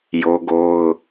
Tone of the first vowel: high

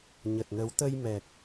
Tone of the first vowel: low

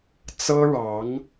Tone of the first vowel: high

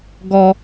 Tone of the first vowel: high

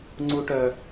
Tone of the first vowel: low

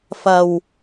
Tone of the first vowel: low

